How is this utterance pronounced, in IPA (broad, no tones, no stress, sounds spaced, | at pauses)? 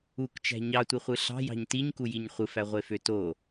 u k t͡ʃ æ̤ ɲ ɑ tʷ i χʷ ɯ ɬ ɑ̤ j ɑ̤ ɲ t i ɲ k u j i ɲ χʷ ɯ f æ ʁʷ e f ø t o